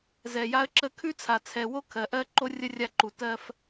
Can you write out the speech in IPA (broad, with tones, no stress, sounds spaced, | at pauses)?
z ɛ˨ j a˦ ə̯ ǁ ə˦ kʰ ʉ˦ t͡sʰ a˨ t͡sʰ ɛ˨ w o˦ kʰ ɜ˨ ʔ ɜ˦ ǃ o˦ rʲ ə˦ rʲ a˦˨ ǃ u˨ t ɜ˦ f